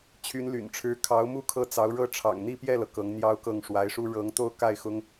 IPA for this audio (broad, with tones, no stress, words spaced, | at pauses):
t͡ɕʰy˧˥nly̰˨˩nʈ͡ʂʰɻ̩˧˥ kʰɑ˧˥ʊ̯mu˥˧ kʰɤ˥˩t͡sɑ˧˥ʊ̯ɻɤ˥ ʈ͡ʂʰɑ̰˨˩ŋn̪i˥˧pjɛ˥˩lɤ˩ kɤ˧˥ŋ n̪jɑ˥ʊ̯kɤ˥˩ŋʂwa˧˥ɪ̯ʂu˥ ɻɤ˧˥ŋ t̪o˥˧ʊ̯ka˥˩ɪ̯ xʊ˥ŋ